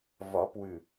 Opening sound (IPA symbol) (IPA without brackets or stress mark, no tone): v